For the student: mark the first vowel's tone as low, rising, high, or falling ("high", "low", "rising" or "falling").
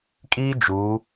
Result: high